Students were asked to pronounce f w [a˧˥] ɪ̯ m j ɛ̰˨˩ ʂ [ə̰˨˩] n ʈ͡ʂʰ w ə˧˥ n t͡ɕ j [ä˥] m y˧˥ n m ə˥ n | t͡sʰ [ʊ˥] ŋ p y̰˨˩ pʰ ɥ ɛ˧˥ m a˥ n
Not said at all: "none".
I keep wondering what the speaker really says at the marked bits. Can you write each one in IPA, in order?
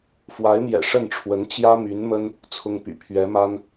a˧˥, ə˥˩, ä˥, ʊ˥

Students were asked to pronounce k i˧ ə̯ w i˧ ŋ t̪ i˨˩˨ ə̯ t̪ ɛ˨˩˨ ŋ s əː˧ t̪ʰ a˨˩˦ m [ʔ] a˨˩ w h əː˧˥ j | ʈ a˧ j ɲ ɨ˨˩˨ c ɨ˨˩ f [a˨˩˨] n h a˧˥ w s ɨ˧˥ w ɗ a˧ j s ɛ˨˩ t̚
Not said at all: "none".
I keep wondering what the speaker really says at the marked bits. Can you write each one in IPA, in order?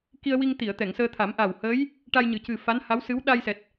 ʔ, a˧˥

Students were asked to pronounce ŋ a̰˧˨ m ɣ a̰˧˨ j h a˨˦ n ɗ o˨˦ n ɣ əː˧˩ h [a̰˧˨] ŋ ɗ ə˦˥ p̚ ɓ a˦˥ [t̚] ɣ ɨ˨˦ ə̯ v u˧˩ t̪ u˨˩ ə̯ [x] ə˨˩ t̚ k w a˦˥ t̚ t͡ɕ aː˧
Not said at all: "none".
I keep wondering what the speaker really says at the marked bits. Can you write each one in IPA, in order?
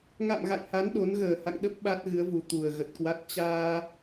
a̰˧˨, t̚, ɣ

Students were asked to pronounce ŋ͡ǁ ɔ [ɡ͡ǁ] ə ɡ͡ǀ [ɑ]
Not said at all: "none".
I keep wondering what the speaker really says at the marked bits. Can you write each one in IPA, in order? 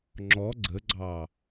ɡ͡ǀ, ɑ

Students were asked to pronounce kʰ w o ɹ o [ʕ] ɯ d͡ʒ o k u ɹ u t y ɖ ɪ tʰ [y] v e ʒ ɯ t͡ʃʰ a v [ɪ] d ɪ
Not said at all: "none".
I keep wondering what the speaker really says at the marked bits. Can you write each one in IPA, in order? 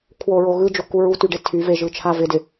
ɣ, y, ɪ

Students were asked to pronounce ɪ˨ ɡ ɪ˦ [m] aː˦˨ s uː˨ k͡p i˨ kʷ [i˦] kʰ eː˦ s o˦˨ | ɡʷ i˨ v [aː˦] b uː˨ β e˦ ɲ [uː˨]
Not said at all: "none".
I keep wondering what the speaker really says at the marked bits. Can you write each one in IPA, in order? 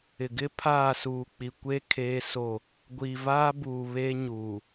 pʰ, e˦, aː˦, uː˨

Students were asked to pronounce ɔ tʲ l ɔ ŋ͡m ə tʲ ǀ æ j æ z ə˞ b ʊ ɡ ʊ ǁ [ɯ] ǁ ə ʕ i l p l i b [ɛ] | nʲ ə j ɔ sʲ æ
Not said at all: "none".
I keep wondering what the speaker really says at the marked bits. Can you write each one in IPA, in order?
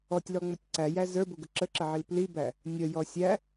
ə, æ

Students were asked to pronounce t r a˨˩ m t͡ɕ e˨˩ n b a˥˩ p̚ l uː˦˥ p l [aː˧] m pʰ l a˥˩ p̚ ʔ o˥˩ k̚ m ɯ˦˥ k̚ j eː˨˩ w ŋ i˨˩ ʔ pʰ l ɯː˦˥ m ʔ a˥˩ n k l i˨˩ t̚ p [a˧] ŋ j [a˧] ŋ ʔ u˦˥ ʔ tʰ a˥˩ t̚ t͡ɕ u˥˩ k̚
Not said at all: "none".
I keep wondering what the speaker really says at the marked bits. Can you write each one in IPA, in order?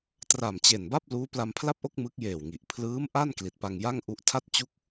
a˧, a˧, a˥˩

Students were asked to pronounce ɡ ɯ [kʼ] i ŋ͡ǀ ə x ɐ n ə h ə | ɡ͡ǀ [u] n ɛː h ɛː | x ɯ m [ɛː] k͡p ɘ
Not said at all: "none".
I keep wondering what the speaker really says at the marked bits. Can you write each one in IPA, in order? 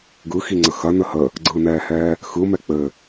x, ɯ, ɛ

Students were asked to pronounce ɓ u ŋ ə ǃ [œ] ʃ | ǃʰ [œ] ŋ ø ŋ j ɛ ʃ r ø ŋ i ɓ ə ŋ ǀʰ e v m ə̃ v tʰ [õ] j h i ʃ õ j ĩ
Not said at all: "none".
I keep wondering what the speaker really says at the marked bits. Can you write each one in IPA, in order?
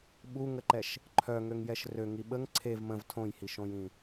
ɛ, œ, õ

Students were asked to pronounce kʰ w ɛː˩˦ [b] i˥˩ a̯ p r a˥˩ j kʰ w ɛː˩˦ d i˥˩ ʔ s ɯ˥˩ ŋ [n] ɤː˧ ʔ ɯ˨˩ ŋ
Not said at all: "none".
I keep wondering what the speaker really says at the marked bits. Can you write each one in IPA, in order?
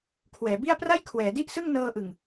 b, n

